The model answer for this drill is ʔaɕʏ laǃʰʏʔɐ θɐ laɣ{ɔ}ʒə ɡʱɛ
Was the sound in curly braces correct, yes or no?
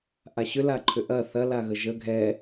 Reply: no